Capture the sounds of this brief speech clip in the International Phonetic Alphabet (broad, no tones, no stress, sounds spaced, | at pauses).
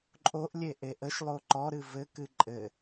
ǃʼ o ʔ lʲ e ʔ e ʔ ə ʃ lˠ o ǃ ɔ ɾ ɨ v ɘ k ɨ ǃʼ ɘ